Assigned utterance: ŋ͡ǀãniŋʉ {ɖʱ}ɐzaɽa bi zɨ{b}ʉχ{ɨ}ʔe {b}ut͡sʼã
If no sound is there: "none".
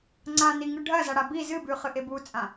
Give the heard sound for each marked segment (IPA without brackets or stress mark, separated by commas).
ɖʱ, b, ɨ, b